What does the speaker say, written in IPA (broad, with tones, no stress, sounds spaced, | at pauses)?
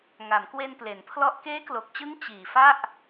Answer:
ŋ a˩˦ m k w e˧ n p l e˩˦ n pʰ l ɔ˥˩ ʔ k eː˦˥ k l o˨˩ k̚ t͡ɕ ɯ˦˥ ŋ t͡ɕ iː˨˩ f a˥˩ ʔ